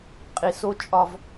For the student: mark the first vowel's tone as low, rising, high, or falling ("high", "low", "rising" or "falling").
low